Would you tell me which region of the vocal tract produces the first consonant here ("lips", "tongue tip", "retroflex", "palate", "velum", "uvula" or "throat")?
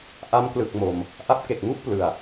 throat